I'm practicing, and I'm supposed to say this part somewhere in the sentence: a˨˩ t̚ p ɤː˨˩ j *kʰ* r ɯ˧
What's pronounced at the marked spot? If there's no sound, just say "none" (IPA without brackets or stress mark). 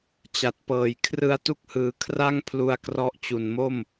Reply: kʰ